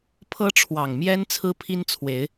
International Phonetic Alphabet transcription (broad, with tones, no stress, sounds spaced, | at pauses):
pʰ ɤ˦ ʈ͡ʂʰ w ɑ˨˩ ŋ m j ɛ˦ n t͡sʰ ɹ̩˦ pʰ i˦ n t͡sʰ w e˨˦ ɪ̯